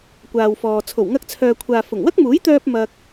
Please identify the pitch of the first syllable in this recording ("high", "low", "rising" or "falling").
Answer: low